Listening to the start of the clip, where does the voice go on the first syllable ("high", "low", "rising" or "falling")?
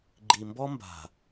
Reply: low